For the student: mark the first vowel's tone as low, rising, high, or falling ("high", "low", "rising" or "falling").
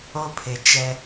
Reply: high